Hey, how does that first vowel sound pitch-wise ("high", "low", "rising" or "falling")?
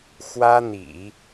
high